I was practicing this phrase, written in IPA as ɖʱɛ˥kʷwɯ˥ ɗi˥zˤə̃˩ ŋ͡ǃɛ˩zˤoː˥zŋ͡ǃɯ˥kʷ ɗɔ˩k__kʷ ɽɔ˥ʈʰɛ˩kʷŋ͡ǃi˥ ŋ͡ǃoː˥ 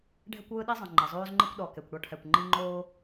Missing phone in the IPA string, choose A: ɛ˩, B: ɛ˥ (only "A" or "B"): A